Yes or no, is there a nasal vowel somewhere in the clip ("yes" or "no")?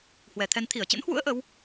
no